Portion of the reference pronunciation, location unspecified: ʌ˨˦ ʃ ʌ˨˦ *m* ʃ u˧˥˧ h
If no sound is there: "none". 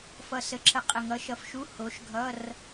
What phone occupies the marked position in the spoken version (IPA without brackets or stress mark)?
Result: f